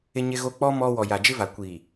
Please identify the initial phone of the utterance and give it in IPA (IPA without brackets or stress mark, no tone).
ɪ